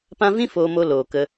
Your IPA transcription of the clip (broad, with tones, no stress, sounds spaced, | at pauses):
p ã˦ v ĩ˦ f oː˧ m o˧ l oː˨ k ə˧